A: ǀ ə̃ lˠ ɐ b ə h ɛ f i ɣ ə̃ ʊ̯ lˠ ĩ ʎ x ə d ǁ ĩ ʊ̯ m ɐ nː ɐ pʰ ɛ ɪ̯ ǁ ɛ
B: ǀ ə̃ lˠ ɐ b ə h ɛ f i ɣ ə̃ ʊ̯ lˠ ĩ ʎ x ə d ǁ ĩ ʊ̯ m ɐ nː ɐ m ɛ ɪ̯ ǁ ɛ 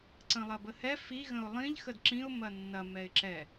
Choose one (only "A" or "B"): B